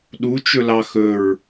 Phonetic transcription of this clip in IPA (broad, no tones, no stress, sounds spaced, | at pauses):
ɗ u t͡ʃ ɵ l ɑ x ɵ ɹ